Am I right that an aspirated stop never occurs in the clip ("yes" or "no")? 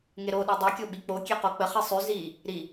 yes